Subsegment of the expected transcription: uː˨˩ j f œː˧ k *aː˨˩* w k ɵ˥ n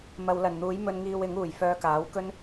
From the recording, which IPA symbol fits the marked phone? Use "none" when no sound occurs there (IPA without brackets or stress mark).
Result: aː˨˥